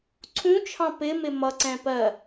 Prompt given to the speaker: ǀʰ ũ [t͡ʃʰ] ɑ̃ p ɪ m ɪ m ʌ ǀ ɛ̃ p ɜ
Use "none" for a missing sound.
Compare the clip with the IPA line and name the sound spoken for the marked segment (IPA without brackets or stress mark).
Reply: t͡ʃʰ